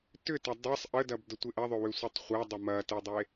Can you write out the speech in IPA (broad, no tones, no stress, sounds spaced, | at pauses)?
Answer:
t ʏ t ɐ dˤ i sˤ ʔ ə d ɐ b d ə tʷ ɪ ʔ ɐ ðˤ ʏ w ʏ sʷ e tˤ χʷ ɐ dˤ ə m ɐ t e dˤ e